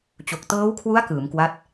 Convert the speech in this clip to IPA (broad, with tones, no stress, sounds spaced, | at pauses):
t͡ɕ o˨˩ k̚ t ɤː˦˥ w kʰ w u˦˥ a̯ k ɯː˩˦ m k w a˦˥ t̚